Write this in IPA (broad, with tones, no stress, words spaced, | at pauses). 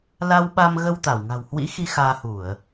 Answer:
la˧wɓa˧mɣə˧w t̪a˧˩wŋa̤˨˩whwḭ˧˥xi˧ xaː˧hu˧˩˨ə̯